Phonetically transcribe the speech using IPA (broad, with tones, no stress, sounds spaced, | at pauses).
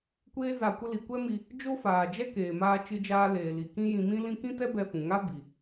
kʷ eː˧ z a˨ kʷ ə˧ l i˨ kʷ ɛ˦ m i˧ | d͡ʒ o˦ f aː˨ d͡ʒ ɛ˦ k eː˨ m aː˧ t͡ʃ ɨ˧ d͡ʒ aː˧ l eː˨ l i˨ k ĩ˦ j ĩ˧ m ĩ˦ l ĩ˦ k ĩ˦ t ɛ˦ b ɛ˧ f ũ˨ ŋ a˦ b i˨